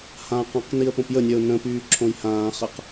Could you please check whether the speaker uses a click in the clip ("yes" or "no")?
yes